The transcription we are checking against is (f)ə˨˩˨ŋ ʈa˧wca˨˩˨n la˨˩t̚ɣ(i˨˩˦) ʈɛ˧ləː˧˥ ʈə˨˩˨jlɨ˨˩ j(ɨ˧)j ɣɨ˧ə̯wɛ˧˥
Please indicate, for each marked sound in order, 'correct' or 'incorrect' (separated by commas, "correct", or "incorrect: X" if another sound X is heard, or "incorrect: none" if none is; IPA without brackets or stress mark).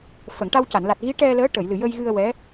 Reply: correct, incorrect: i˧˥, incorrect: ə˧